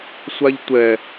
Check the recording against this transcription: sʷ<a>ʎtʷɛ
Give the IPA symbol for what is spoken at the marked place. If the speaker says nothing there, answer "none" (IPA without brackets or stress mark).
a